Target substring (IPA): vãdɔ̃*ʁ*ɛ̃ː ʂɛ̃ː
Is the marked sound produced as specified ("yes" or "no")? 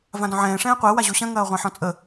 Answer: no